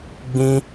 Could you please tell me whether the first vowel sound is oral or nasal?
nasal